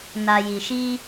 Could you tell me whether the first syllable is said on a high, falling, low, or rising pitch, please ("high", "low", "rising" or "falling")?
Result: low